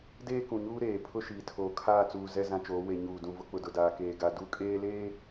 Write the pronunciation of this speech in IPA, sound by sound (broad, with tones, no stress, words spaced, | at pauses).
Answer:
deː˦kũ˨ɲuː˦ ɾeː˨ pʰʊ˦ʃiː˨tʰoː˨ kʰaː˦˨t͡suː˨ zɛ˦ zã˦t͡ʃoː˨˦ we˨ɲuː˨dũ˨vʊ˦ k͡pʊ˨dʊ˨daː˨keː˨ ɡa˨ du˦˨kʼeː˦leː˦